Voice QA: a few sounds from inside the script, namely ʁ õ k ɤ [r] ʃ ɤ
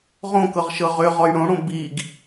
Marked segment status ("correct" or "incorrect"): incorrect